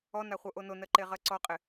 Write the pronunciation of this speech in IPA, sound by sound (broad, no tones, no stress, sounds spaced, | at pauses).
ɔ n a χʷ ɤ ʔ o n o n ɜ ǃ e ʁ ɜ ǀ ɔ qʼ ɪ